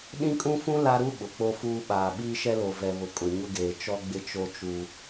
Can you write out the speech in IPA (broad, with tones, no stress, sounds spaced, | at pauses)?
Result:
ɗ ĩ˦ kʼ ũ˦ f ũ˦ l a˦ ɾ u˦ ɓ ʊ˨ k͡p o˦ f uː˦ ɓ aː˨ ɓ iː˦ ʃ ɛ˦ l o˨ v ɛ˨ β ʊ˨ kʼ ʊ˨ ɲ ʊ˦ ɡ eː˨ t͡ʃ ɔ˦ ɡ͡b ɪ˦ t͡ʃ o˦ t͡ʃ u˦